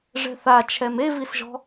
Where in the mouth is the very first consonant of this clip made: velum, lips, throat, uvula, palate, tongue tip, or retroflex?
retroflex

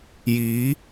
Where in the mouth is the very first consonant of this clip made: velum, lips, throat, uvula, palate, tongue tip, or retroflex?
palate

